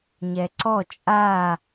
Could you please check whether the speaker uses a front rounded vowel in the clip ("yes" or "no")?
no